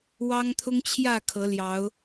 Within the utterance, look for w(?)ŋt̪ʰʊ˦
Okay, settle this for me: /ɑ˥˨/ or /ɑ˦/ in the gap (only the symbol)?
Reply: ɑ˦